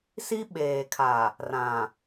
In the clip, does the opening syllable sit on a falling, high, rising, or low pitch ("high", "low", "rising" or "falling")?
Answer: high